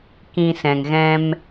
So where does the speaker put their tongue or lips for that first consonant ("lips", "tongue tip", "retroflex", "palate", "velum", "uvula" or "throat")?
velum